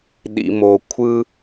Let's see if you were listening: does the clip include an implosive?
yes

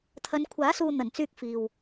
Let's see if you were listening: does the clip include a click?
no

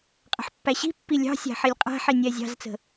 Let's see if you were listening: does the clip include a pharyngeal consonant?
yes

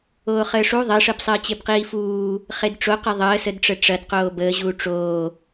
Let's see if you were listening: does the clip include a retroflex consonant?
yes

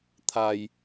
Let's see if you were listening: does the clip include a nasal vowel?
no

